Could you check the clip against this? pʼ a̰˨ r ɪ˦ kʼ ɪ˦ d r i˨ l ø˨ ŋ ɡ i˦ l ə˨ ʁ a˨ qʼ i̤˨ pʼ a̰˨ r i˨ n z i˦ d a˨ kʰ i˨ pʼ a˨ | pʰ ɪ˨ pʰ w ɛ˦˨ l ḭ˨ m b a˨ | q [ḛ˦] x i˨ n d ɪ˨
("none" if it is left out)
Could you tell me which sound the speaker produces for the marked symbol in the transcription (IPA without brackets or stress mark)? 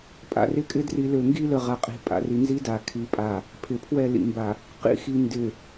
ḭ˦